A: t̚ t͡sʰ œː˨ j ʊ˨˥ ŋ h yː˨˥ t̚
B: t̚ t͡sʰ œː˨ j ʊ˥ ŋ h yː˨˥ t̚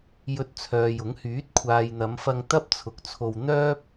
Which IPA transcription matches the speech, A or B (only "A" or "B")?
A